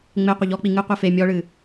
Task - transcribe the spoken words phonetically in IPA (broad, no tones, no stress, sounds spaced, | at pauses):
ŋ͡m e qʷ ɘ ʎ ɔ k͡p i ŋ ɨ qʷ i f e mʲ ɔ ɭ ɨ